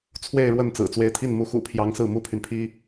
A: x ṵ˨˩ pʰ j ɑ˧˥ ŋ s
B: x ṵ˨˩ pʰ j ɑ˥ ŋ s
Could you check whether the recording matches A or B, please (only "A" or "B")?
A